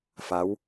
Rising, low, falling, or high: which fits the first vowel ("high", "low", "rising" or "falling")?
rising